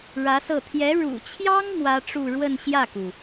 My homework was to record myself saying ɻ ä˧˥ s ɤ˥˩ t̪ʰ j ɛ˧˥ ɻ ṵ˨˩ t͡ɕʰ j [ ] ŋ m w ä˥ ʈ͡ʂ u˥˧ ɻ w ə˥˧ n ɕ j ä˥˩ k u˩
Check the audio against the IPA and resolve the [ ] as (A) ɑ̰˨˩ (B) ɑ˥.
B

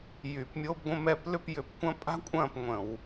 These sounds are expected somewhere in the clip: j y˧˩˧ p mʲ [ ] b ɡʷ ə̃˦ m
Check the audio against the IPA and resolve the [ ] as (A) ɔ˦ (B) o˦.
B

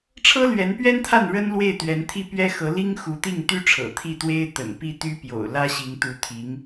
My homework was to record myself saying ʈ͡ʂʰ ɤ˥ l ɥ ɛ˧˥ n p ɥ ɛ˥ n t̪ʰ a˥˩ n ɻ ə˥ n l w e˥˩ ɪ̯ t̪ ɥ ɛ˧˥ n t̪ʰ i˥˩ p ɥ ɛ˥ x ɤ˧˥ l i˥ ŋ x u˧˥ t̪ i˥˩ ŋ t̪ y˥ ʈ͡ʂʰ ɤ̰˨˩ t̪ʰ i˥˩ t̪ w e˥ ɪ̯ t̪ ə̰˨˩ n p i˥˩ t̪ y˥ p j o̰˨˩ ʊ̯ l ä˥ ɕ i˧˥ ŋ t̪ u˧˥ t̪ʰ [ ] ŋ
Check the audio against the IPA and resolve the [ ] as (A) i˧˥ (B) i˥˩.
A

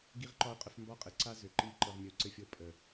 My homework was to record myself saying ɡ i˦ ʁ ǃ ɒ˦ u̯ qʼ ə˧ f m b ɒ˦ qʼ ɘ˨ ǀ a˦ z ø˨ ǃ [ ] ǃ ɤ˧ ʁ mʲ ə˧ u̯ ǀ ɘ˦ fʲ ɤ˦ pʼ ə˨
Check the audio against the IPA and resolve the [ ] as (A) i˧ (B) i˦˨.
B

